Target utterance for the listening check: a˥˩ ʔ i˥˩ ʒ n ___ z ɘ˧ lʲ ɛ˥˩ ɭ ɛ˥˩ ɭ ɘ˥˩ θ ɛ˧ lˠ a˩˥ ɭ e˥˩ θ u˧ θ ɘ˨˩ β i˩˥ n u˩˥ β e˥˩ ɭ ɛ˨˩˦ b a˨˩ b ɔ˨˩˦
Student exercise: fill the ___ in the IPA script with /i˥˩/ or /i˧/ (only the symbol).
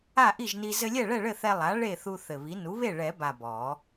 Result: i˧